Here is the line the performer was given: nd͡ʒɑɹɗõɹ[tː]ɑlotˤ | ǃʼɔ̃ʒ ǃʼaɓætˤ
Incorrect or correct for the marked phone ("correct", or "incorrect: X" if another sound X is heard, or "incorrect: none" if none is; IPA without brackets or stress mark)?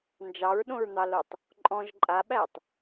incorrect: n̪